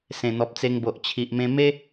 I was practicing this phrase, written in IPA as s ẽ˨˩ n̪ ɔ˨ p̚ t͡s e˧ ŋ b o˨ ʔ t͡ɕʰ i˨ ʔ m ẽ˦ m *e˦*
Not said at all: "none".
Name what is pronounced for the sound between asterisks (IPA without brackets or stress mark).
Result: e˦